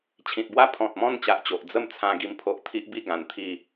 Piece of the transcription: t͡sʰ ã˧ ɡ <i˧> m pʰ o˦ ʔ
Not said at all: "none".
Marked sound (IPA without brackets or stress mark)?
i˧